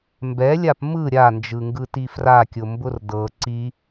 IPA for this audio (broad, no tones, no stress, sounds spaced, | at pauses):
m b ɛ lʲ a p m ɯ ɾʲ a n d͡ʒ ɯ ŋ ɡ ɯ t i f r a kʲ ʊ m b ʊ r d ɤ ǀ i